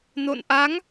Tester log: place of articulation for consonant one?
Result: alveolar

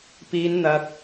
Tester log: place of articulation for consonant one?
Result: labial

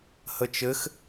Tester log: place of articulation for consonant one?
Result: glottal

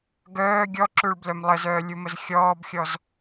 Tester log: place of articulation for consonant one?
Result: velar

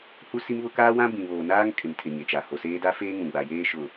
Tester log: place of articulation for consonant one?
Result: glottal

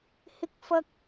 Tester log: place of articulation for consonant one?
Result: glottal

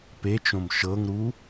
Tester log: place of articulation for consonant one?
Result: labial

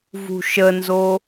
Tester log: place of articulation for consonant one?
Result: labial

